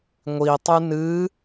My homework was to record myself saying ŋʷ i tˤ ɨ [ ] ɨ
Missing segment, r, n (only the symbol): n